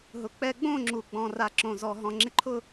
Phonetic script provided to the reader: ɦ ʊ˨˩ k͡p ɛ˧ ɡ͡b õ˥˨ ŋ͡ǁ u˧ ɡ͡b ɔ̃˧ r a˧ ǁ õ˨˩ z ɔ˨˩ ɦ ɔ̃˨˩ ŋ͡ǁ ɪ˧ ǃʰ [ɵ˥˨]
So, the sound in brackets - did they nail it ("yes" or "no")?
no